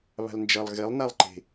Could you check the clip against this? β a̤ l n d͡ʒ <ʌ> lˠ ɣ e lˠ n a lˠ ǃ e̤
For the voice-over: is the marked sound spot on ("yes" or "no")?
yes